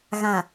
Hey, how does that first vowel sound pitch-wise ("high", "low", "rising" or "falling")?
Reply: low